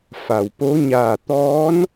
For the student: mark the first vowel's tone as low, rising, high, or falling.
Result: low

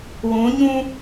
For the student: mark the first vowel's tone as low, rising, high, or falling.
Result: rising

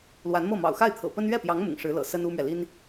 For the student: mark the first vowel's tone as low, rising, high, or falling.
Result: rising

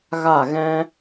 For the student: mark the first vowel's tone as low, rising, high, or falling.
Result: falling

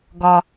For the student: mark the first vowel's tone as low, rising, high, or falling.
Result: high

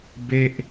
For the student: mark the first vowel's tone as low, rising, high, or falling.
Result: falling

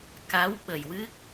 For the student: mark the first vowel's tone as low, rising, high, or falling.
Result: rising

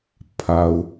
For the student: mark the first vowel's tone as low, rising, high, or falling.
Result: low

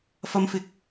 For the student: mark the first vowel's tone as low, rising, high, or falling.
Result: high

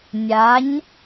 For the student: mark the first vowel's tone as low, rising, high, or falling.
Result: rising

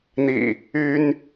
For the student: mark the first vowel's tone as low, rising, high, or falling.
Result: low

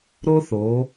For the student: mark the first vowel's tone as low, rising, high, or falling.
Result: high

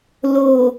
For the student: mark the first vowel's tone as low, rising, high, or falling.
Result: low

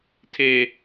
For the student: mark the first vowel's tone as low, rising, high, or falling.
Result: high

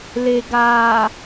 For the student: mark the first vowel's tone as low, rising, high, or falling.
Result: low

